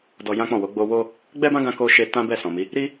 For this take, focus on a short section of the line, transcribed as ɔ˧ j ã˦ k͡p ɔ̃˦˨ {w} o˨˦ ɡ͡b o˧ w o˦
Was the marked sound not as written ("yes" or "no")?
no